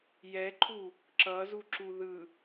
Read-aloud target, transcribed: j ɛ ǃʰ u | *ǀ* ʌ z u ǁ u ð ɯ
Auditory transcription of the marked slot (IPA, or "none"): ǁ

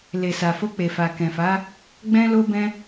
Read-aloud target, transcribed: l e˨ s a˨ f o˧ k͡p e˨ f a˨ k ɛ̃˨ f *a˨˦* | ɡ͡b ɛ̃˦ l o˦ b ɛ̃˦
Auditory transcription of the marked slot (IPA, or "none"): a˨˦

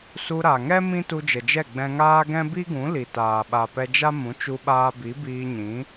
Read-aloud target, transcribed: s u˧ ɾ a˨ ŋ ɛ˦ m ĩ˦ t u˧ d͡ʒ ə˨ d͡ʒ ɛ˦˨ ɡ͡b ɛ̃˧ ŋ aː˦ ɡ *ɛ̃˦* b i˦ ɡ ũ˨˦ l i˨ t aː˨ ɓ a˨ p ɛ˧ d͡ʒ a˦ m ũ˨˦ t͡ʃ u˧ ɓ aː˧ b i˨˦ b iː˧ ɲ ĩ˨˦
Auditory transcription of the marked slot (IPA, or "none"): ɛ̃˦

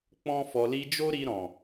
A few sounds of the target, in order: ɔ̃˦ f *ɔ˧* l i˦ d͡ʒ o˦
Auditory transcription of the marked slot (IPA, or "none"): ɔ˧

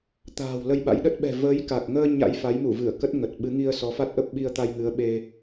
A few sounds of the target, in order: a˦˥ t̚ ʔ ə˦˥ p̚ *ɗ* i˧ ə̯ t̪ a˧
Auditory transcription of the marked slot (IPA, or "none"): ɓ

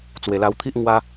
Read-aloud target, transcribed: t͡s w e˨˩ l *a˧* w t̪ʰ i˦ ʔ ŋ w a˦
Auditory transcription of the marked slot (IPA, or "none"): a˧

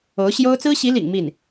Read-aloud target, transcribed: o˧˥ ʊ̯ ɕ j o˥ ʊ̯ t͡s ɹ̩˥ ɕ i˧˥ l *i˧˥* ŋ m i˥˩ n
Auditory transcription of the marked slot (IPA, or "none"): ḭ˨˩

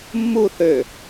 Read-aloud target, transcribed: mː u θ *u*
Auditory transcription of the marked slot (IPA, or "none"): ø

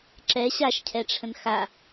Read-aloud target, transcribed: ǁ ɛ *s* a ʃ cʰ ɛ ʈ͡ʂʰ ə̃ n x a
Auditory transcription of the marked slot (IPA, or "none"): ɕ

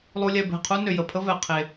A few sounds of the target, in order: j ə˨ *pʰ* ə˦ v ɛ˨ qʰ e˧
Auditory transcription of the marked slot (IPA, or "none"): pʰ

